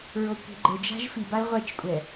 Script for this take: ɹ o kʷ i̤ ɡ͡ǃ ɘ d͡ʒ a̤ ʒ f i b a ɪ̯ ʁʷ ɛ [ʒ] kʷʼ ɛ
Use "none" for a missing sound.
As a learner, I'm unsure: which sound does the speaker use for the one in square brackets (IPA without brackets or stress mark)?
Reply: t͡ʃ